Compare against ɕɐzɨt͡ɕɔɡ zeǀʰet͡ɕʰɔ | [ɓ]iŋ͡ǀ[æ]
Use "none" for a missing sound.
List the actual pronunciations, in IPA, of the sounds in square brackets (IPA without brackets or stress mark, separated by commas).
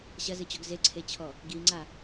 ɡ, a